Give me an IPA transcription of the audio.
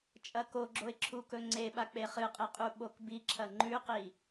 t͡ʃʼ ɐ k o ɡ͡ǁ o ɪ̯ ǁʰ u k ɵ ŋ͡ǀ e ɓ a k͡p e χ ɨ qʼ e qʼ u ɓ o k b i ǁʰ ɐ ŋ͡ǃ ʉ q i

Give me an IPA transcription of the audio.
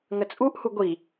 ŋ ə t͡sʼ u ʔ h u ɡʷ i

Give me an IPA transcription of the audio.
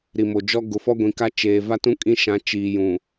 ɾ i˨ m o˨ d͡ʒ ɔ˦ ɡ ʊ˨˦ f ɔ˦ ɡʷ ĩ˨ k a˦ t͡ʃ eː˨ v a˦ t ũ˦ kʼ ĩ˦ ʃ ã˨˦ t͡ʃ iː˨ j ũ˨

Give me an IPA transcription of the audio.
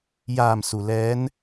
j aː˧˩ m s u˩ l ɛː˧˥ n

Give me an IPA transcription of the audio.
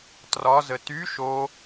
t r ɒ z ə t y ʃ o

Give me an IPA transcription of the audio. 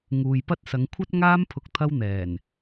ŋ uː˨ j p ɐ˥ t̚ s ɐ˨˧ ŋ kʷʰ ɐ˥ t̚ ŋ aː˥ m pʰ ʊ˥ k̚ t̪ʰ ɐ˥ w n̪ ɛː˨˩ n

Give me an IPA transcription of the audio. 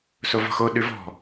s o v ɔ̤ x o ɗ ʉ v ɔ̤

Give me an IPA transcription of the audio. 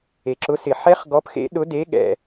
e˩ ǁ ʊ˨˥ s ɪ˩ ħ ɛ˦˥ χ ɡ ɔ˨˥ p x ḛ˨˥ ɗ ʊ˨˥ d e˨˥ ɠ ɛ̰˩

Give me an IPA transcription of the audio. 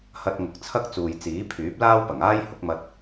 h ɐ˧ t̚ ŋ ʊ˨˥ k̚ t͡sʰ ɐ˥ k̚ t͡s uː˨ j t͡s iː˨˥ pʰ yː˨˥ p̚ l aː˥ w p ɐ˨˩ ŋ aː˥ j h ʊ˨˥ k̚ m ɐ˧ t̚

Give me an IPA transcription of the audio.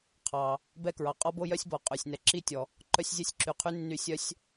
qʰ ɑ˩ | b ɛ˥ k ɹ ɑ˩ qʼ ɔ˥ b o˥ j œ˥ sʲ b ɔ˩ qʼ ø˩ sʲ n ɛ˩ ǁ i˥ tʲ ɔ˩ | ǃ œ˥ sʲ zʲ ɛ˥ sʲ ǁ y˩ qʰ y˥ nː y˥ sʲ œ˥ sʲ

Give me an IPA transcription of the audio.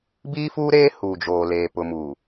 b iː˦ f uː˦ ɾ eː˦ h uː˨ d͡ʒ oː˨ l eː˨ p ʊ˨ m uː˨

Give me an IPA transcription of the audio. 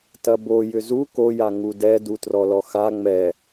t ɐ b o j ʏ z u k o j a ŋ u d ɛ d u t r ɔ l ɔ x a ŋ͡m ɛ

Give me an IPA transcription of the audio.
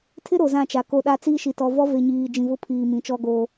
tʰ ɪ˦ ɾ o˨ z ã˦˨ t͡ʃ a˨ k o˦ ɗ a˦ t͡s iː˦ ʃ i˨ t ɔ˨ v ɔ˦ v e˨ ɲ iː˨ d͡ʒ ĩ˨ v ʊ˦ pʰ iː˨ m ĩ˨˦ t͡ʃ ɔ˦ ɡ oː˦

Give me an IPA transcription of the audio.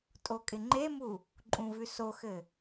tʼ o kʼ ɪ ŋ͡ǃ e m u | ǃʼ ũ v ʉ s o x ɘ

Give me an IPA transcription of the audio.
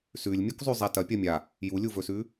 s ʉ lʲ mʲ u k zˤ ʉ zˤ a t ɐ pʲ ɐ mʲ a | j u lʲ u v ɵ s ʉ

